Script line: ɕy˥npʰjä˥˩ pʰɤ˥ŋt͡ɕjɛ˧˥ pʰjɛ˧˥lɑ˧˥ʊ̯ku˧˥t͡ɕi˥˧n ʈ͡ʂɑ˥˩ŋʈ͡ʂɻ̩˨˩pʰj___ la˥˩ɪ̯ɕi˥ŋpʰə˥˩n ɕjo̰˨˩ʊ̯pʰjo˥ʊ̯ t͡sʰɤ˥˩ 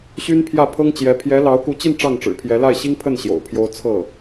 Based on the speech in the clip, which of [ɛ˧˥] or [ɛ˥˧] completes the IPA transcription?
ɛ˧˥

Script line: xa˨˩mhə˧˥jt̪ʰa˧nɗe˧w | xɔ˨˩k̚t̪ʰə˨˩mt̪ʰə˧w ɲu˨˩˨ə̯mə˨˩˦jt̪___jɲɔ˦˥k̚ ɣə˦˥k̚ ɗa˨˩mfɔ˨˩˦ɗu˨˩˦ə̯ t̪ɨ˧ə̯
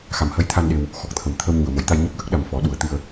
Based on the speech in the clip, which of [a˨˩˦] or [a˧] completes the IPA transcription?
a˧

